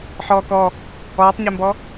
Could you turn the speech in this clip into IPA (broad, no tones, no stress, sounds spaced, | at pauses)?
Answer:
ħ ɔː k ɔ | ɔː tˤ ɲ ɛ m b ɔ